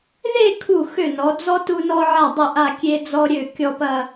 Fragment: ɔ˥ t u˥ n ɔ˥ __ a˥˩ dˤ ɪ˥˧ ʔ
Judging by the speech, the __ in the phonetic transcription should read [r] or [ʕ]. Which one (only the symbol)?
ʕ